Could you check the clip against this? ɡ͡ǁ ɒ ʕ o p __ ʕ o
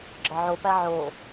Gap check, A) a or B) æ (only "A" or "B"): B